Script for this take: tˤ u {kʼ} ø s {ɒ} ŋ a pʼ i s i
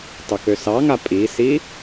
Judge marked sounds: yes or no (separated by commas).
no, no